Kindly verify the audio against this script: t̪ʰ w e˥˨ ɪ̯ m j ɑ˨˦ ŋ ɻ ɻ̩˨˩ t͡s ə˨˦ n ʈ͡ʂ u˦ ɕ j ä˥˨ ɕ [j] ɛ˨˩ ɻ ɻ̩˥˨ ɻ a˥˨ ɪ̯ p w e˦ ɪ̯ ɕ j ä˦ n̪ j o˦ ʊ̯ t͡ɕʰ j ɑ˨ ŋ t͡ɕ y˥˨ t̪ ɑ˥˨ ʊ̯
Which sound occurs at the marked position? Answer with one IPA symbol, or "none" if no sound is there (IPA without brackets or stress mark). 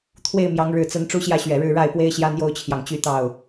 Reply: ɥ